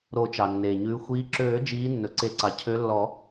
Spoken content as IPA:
ɾ o˨˩˦ t͡ʃ ɑ˩ nː eː˩ ɲ ʉː˨˦ xʷ iː˨˦ ǁ øː˨˩˦ d͡ʒ iː˨˦ nː ɵ˩ ǀ e˨˩˦ ǀ ɑ˩ cʰ ø˨˦ lː ɔ˨˩˦

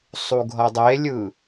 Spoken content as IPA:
sˤ u ɡʱ ʌ dˤ e lʲ ɯ

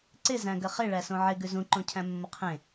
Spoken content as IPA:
ǀ ɪ z æ̃ ɡ ə χ ɪ ɭ æ s õ ʕ ɪ ɡ ʉ z ũ ǃ õ cʰ æ̃ mː ə qʰ ẽ

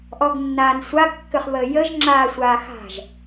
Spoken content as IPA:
ʔ ɔ ɡ nː aː n sʷ a ɡ kː ʏ χ β əː j ə ʒ ŋ͡ǁ aː sʷ aː x a̤ ʒ

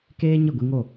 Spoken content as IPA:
k eː˦ ɲ ə˦˨ ɡʷ i˧ ŋ o˦˨

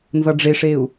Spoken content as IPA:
n z ʌ ɖ͡ʐ e ʂ e u̯

